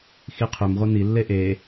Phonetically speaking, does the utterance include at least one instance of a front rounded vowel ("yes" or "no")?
yes